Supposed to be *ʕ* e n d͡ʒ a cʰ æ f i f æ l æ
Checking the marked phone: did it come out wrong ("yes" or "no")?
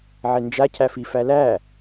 no